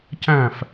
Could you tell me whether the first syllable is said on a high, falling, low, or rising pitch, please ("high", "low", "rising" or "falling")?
falling